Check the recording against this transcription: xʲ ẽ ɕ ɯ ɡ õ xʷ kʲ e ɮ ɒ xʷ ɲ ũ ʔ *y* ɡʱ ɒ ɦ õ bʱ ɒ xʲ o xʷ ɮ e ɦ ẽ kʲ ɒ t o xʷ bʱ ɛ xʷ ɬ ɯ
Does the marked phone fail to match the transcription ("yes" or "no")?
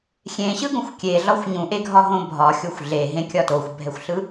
yes